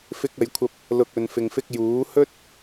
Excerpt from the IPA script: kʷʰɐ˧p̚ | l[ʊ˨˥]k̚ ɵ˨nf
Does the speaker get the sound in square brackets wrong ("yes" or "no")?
yes